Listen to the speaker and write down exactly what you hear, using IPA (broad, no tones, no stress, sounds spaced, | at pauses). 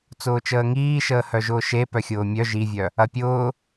t͡s ʊː t͡ʃ əː ŋ iː ʃ əː h œ ʒ ʊː ʃ e p œ xʲ ʊː mʲ œ ʒ i vʲ œ | ɐ pʲ ʊː